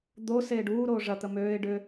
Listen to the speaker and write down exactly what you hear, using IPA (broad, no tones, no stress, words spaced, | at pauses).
d̪o seːɖuː ɾoːʐɐ t̪əmøːɪ̯ ɖʏ